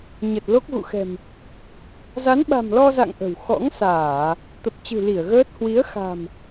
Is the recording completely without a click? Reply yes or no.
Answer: yes